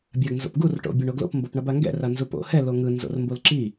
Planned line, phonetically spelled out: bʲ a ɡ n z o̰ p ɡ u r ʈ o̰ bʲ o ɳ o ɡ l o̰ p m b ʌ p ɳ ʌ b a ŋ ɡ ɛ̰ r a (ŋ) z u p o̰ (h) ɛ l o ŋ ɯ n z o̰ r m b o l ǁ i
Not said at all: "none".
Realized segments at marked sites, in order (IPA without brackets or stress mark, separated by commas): n, h